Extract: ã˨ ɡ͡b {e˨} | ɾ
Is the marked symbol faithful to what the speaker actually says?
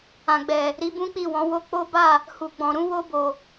no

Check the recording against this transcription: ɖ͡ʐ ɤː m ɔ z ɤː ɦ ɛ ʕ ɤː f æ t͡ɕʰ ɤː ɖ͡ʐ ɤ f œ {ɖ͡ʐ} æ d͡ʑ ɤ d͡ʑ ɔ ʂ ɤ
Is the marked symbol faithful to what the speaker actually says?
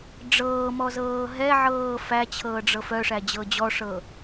no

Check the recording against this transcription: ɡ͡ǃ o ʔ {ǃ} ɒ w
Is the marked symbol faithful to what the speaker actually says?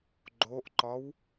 yes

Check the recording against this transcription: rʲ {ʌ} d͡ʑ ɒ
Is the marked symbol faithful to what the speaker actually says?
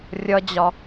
yes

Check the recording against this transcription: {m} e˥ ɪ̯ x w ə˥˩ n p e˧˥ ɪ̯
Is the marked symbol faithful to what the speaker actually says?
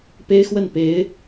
no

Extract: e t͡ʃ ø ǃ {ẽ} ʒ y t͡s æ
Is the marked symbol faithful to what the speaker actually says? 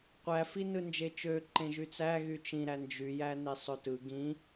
yes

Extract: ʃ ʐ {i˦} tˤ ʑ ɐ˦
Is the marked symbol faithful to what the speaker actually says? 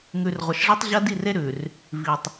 yes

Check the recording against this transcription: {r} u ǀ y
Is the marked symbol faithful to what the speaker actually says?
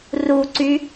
yes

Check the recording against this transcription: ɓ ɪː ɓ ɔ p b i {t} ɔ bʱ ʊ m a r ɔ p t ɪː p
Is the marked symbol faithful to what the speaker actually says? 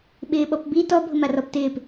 yes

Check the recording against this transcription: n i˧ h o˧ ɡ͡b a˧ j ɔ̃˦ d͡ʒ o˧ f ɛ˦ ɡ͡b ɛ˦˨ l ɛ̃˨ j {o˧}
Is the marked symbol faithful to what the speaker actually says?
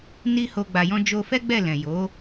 no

